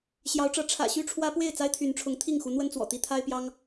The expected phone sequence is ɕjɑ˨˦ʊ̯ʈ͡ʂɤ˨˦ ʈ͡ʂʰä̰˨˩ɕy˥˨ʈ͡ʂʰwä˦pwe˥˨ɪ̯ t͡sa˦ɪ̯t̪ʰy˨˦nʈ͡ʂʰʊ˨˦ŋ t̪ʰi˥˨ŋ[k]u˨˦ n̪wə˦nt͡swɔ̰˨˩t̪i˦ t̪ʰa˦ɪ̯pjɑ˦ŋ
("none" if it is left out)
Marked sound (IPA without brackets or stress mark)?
x